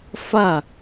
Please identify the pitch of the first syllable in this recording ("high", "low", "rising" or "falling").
falling